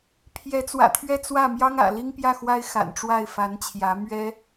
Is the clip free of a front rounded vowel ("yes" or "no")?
yes